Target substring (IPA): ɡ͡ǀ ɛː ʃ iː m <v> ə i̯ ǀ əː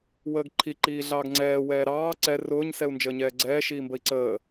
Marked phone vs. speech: incorrect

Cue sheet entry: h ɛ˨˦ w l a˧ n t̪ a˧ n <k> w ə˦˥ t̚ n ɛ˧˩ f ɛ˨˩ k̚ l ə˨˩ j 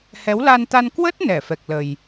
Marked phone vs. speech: correct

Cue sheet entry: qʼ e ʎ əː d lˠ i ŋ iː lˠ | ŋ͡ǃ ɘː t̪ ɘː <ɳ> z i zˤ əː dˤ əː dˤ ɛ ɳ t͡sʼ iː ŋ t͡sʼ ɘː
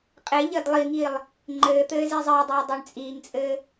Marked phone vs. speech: incorrect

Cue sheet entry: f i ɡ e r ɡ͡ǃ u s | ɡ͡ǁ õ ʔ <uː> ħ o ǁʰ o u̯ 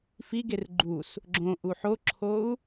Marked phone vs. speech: incorrect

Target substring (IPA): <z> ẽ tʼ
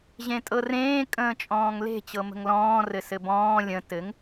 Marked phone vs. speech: incorrect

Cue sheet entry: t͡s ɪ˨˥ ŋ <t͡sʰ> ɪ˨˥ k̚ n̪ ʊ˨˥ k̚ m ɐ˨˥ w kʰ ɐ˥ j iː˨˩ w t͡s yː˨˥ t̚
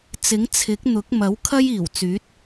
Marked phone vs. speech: correct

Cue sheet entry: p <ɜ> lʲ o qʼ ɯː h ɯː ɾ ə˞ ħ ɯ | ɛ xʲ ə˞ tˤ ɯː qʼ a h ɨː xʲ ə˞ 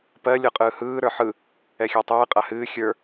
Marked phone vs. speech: correct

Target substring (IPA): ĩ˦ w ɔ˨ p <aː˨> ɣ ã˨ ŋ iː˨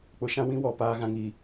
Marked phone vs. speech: correct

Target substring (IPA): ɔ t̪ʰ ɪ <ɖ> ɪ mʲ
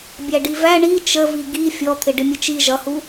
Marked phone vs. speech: correct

